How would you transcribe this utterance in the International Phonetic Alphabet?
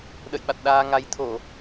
ɗə̰˧˨jɓa˨˩t̚ɗaː˧ŋa˨˦j t̪ʰo˧˩˨

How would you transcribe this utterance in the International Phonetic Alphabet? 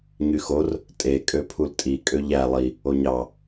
ɲyxor | tʼe kʼøpʰultʼi kʼøʎæ lˠi | oɲɑ

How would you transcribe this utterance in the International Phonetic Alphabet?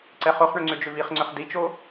ǀɛχoχɳʏ ŋ͡ǀʏd͡ʒʏviχŋ͡ǀʏχ dit͡ʃo

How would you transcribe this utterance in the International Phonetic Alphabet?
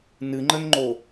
nɨŋ͡ǃənŋ͡ǃo

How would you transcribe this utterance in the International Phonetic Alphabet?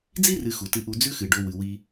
d͡zi˥rɨ˨ xu˩tɨ˨ʔu˨ d͡zʉ˦xɨ˩ɖo˨wɨ˩ wi˨

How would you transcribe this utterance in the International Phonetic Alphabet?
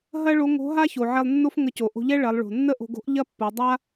ɦɐ˥ɭo˧˥ ŋo̤˧˥ɦa˥ço˩ ʕɛ˧lˠnːo˥fŋə˧co˩ ʔo̤˧ʎɛ˥ ɭɐ˩˧lˠɭo̤˩ nːə˥ʔo̤˧ɡo̤˥ʔ ʎɐ˥pːo˩˧ dˤa˥

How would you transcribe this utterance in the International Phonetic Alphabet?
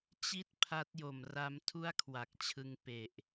t͡ɕi˥˩t̚pʰa˦˥t̚jo˨˩m ra˧m tʰu˥˩a̯kʰwa˨˩k̚t͡ɕʰɯ˧ŋ pe˨˩ʔ

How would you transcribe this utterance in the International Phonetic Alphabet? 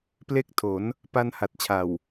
ple˦˥k̚ tʰo˩˦n | pa˧n ha˨˩t̚t͡ɕʰa˨˩w

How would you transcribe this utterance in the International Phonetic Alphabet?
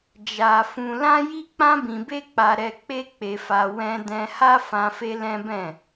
d͡ʒa˧fũ˧ lã˦ji˦ k͡pã˦bĩ˧be˦k͡pa˧ ɾɛ˧k͡pe˦k͡pe˧fa˧ wɛ̃˧ dɛ̃˧ha˦ fã˧fe˧ lɛ̃˦bɛ̃˦˨

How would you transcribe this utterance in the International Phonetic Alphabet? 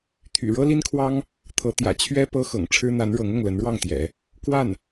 t̪ʰy̰˨˩ ɻɤ˥li˥nkʰwɑ˥ŋ | t̪ʰɤ˧˥ t̪jä̰˨˩ t͡ɕʰɥɛ˥ pɤ˥xɤ̰˨˩ŋ ʈ͡ʂʰɻ̩˥n̪a˧˥nɻɤ˧˥ŋ ʊ˥˩ŋ lə˧˥nɻwɑ˥˩ŋt̪jɛ̰˨˩˦ | kwa˥˩n

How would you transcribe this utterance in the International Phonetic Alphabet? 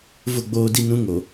vʊ˦˨ɡ͡boː˦di˦ nũ˦ ŋo˨

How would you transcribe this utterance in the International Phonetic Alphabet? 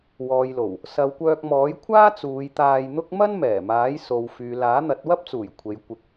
wɔː˨jlo˨˩w | sɐ˨w kʷœː˧k̚mɔː˨˥jkʷʰaː˥ t͡suː˨˧jt̪aː˧jn̪ʊ˥k̚ mɐ˥n mɛː˨˩maː˨˥jso˨w fyː˨laː˨˥n̪ɐ˨˥t̚ wɐ˥p̚t͡suː˨˩j kʷʰe˨˧j kʷɪ˨˥k̚

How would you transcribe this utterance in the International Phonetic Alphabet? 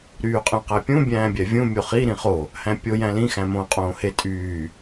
ɾyːqʼẽqæpʲũ bʲæ̃ːbʲævʲũ mʲoχi ɾĩχo | hæ̃pʲo jæ̃lĩ xæ̃mõːqʼõːhe tʼyː

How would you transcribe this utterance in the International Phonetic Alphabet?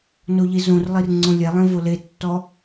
noʎizõrlˠir ŋ͡ǀõlʲɛlˠẽ voletːɔ

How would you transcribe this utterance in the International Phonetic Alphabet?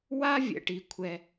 wa˥vʲɛ̰˩ʈ i˩kʷʰɛ˩

